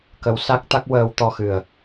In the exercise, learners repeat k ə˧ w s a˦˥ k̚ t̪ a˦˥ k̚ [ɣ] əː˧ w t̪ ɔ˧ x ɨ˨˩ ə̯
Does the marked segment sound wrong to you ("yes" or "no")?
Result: yes